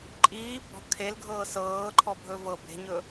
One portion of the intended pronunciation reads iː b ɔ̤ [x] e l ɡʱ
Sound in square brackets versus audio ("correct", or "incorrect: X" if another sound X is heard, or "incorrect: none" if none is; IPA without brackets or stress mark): incorrect: kʰ